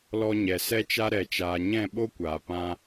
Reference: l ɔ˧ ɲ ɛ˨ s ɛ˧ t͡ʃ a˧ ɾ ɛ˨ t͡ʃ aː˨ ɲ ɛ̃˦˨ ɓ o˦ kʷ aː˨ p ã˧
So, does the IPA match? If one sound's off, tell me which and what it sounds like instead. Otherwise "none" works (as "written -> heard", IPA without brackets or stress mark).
none